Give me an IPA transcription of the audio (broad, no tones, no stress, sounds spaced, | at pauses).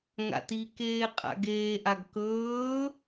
ŋ a̰ t i k eː qʼ a̰ ɡ eː ʔ a ɡ k ɵː